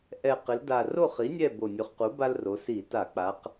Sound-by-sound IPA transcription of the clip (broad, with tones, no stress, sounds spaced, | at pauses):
ʔ ɛ˨˩ q ɪ˩˧ l d a˨˩ r o˥˨ χ i˩˥ nʲ ɛ˥˨ b o˨˩ nʲ u˩˧ χ q u˩˥ b a˦ l r o˩˧ s i˧˩˧ t a˧˩˧ k͡p a˩˧ q